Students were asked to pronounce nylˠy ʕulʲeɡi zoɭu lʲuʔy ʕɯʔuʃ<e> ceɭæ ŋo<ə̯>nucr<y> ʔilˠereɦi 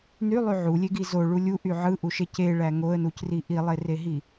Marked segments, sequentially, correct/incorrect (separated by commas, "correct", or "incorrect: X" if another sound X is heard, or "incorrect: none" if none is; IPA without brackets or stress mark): correct, correct, incorrect: i